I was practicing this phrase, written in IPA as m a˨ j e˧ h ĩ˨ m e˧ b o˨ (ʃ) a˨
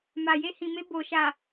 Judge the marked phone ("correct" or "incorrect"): correct